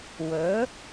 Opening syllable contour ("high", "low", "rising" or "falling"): rising